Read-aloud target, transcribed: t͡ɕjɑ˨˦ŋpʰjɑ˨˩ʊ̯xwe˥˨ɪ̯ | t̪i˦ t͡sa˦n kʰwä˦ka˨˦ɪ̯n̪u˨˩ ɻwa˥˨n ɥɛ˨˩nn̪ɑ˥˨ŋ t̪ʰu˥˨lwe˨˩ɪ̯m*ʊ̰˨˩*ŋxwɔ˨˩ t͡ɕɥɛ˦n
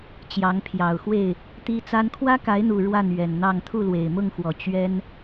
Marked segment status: incorrect: ʊ˥˨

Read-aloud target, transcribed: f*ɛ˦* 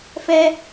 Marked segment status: correct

